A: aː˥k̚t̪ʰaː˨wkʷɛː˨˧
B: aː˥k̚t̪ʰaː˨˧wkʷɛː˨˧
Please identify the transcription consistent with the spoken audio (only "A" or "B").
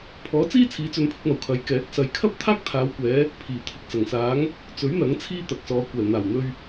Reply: B